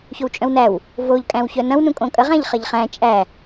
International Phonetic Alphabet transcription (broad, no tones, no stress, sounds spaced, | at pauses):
ç o w t͡ʃʼ œ̃ w n æ w | v o ʎ kʼ æ̃ w ç œ n ɐ̃ w n ũ kʼ õ kʼ ɐ ʁ æ̃ ʎ χ ɐ ʎ χ æ̃ t͡ʃʼ æ